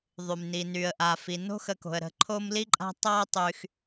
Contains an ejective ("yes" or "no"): yes